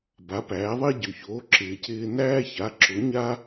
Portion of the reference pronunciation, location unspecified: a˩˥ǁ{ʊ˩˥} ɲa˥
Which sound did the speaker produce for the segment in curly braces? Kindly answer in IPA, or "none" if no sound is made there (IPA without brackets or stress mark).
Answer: ʊ˩˥